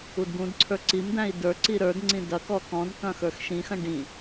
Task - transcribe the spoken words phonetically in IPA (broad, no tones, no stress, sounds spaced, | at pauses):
u d ɡ ũ d ǀʰ ə˞ ǀ i m d̪ æ̃ i̯ d ə˞ ǀ i ɾ ə˞ d ŋ͡ǀ ĩ d ɐ k ɔ k ɔ̃ d k ɐ̃ x ə˞ x ʃ ĩ x ɐ̃ ɖ ĩ